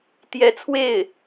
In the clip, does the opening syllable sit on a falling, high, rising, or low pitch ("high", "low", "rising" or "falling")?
rising